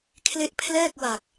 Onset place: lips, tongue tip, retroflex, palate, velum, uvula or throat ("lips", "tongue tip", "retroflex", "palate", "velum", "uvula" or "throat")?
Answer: velum